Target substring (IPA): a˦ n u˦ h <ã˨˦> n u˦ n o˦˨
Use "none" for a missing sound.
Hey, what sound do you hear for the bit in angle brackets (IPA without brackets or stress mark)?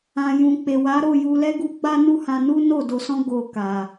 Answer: ã˧